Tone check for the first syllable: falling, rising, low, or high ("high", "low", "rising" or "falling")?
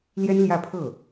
high